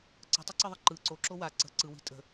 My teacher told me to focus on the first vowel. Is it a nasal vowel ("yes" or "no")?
no